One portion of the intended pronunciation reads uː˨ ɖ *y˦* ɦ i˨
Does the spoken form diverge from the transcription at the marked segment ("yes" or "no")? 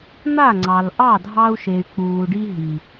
yes